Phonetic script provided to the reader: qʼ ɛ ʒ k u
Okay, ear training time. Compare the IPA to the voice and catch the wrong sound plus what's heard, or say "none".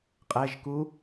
none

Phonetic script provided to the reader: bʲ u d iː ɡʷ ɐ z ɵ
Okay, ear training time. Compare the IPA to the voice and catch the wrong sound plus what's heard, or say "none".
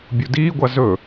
ɐ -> a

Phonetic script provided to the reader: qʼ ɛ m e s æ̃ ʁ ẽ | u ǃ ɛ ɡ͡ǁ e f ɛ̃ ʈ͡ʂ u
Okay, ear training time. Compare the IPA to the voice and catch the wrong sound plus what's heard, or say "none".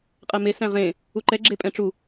f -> pʼ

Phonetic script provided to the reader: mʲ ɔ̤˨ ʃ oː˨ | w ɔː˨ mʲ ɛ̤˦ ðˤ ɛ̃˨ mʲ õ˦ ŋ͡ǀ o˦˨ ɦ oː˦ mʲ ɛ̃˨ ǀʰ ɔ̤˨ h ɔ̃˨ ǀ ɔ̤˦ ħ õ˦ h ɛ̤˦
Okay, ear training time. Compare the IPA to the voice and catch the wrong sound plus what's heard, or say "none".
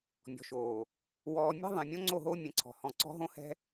ħ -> ɦ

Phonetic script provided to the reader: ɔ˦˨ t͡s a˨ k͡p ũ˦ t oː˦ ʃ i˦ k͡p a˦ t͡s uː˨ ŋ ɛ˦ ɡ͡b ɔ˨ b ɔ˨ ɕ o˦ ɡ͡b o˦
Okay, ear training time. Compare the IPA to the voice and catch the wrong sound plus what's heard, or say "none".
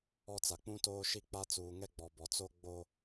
ɕ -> t͡s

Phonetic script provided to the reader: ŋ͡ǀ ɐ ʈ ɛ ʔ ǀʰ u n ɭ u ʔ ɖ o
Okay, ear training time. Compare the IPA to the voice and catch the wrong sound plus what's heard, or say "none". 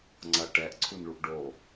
none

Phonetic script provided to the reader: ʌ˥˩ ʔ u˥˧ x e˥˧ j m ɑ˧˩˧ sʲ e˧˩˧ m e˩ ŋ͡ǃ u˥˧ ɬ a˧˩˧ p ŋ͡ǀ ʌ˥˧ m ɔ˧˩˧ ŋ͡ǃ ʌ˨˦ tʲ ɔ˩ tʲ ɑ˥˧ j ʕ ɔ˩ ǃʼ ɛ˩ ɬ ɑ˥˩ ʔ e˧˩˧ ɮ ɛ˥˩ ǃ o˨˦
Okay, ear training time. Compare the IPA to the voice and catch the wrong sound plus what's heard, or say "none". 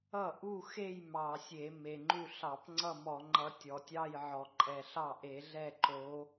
a˧˩˧ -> ɑ˧˩˧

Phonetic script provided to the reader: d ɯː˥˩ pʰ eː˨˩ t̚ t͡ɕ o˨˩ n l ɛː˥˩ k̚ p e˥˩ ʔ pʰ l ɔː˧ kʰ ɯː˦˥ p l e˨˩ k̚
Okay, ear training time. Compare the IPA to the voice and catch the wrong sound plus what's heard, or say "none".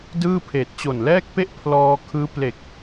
none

